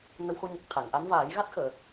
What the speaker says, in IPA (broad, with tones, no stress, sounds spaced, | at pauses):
n ə˧ w x o˧ ɲ ə˨˩ k̚ t̪ʰ a˨˩˨ ŋ ʔ a˧˥ n v aː˨˩˦ j ɣ a˦˥ t̚ x əː˨˩˨